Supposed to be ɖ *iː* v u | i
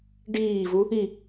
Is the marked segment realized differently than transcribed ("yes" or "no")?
no